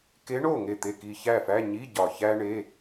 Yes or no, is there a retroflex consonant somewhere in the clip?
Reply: yes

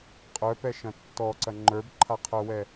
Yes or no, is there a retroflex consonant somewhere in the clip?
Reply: no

